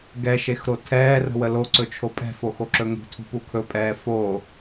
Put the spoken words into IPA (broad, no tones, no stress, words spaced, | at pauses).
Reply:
ɡɛʃexɾo tʰɛːrə̤wə loǀɵt͡ʃʰo pʼɛ̤foxoǁɵ ŋṳtʰṳpu kʰɵpʼɛː fo